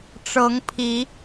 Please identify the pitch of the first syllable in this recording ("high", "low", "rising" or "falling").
rising